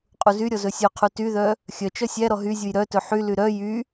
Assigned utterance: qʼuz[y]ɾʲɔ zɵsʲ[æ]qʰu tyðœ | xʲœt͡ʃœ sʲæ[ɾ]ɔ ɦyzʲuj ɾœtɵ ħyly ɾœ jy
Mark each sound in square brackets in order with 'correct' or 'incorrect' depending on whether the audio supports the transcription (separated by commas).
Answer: correct, incorrect, correct